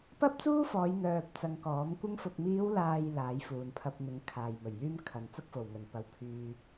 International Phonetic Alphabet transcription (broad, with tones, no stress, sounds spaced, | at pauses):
p ɐ˥ p̚ t͡s uː˥ f ɔː˨˧ j n̪ œː˧ p̚ t͡s ɐ˧ ŋ k ɔː˨˥ m kʷ ɪ˧ ŋ f ʊ˨ k̚ m iː˨˧ w l aː˨ j l aː˨˥ j f uː˨ n pʰ ɐ˧ p̚ n̪ ɪ˨˥ ŋ kʰ aː˨ j m ɵ˨˩ ɥ j yː˥ m kʰ ɐ˨ n t͡s ʊ˥ k̚ f o˨˩ w ŋ ɵ˨˩ n p ɐ˨˥ w pʰ yː˧